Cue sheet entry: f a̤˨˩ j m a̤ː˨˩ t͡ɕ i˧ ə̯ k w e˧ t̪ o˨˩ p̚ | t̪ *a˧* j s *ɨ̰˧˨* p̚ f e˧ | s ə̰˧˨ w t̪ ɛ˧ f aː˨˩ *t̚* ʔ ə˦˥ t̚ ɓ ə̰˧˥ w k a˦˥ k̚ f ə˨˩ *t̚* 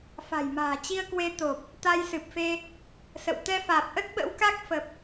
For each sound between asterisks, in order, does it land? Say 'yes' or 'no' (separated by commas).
yes, no, no, no